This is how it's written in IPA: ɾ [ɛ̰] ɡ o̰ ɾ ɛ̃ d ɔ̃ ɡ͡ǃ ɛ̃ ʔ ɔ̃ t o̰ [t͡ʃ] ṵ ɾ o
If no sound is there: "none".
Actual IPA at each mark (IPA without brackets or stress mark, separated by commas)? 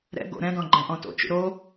ɛ̰, t͡ʃ